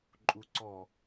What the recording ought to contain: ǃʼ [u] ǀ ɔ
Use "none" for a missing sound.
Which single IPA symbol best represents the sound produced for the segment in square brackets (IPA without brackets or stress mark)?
u